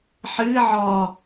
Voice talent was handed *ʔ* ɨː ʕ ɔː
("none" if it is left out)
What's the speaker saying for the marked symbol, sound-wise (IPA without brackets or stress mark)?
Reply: ħ